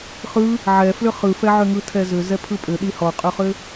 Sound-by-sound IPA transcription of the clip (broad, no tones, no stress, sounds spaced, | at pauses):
χ ɯ | ʕ ɛ f l ʏ χ ɯ f ɛ ʕ ʏ ŋ ɯ tʰ ɛ z ʏ z ɛ pʰ ɯ pʼ ʏ ɗ i h ɔ qʼ ʏ χ ʏ